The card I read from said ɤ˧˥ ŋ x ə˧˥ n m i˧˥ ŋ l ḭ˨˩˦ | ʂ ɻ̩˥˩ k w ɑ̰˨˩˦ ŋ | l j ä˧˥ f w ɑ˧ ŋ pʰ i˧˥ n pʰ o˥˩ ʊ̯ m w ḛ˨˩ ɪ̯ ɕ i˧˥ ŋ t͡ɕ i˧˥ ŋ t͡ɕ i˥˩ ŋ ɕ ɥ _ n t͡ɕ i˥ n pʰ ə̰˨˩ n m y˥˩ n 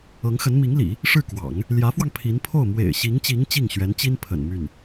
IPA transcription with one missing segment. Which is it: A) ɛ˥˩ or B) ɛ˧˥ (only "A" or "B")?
B